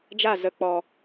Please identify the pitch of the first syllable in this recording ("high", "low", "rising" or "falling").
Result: falling